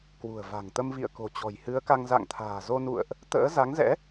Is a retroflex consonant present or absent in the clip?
absent